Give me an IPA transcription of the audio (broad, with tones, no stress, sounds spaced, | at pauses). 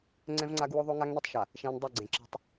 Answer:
ŋ͡ǀ ɛ̃˦ v ŋ͡ǀ a˦ ɡ w o˦ ðˤ o˦ ŋ a˦ ŋ n e˦ tˤ ʃ a˨ | ʃ ɛ̃˦ n dˤ ɛ˦˨ ɡ͡ǀ ẽ˨ ǁ i̤˦ tˤ